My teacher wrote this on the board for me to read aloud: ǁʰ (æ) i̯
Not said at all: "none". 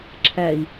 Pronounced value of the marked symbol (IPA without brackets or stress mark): æ